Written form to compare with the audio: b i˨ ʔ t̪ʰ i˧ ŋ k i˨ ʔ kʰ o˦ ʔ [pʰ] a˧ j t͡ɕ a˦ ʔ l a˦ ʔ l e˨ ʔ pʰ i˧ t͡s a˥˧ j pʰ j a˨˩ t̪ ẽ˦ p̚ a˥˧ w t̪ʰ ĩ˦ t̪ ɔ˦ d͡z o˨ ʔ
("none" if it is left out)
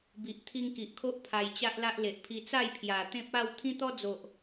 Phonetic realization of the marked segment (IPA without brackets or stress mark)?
pʰ